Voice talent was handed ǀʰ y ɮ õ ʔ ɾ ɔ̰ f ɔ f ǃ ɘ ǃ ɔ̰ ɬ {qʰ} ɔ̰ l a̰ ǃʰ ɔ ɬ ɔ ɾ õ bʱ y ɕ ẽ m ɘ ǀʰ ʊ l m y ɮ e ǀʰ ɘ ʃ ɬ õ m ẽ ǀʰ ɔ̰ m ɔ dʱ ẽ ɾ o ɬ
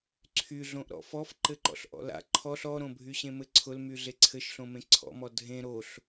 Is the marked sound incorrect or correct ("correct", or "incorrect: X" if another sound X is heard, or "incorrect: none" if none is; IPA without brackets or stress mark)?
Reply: incorrect: ʔ